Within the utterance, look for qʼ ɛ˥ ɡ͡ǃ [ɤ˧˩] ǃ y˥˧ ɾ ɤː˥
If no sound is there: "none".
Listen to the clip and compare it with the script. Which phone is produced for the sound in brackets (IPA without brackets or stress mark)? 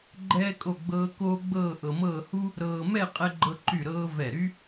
ɤ˥